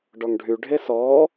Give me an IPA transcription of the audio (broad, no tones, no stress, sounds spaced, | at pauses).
ɖ ɔ ŋ ɖʱ y ɖʱ e s ɔː